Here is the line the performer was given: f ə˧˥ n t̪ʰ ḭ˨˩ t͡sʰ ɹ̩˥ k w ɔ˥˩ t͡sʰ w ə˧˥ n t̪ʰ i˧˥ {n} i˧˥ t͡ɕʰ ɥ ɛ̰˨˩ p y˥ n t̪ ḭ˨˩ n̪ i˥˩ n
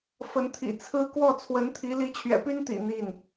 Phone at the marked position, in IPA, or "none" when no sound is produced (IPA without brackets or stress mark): l